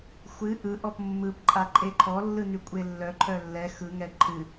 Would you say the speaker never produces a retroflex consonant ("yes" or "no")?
yes